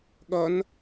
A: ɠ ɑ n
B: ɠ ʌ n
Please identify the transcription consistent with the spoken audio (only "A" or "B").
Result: B